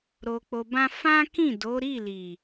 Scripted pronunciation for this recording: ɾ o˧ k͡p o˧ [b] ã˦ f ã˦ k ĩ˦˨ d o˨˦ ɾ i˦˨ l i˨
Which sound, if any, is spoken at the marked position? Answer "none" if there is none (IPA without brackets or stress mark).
b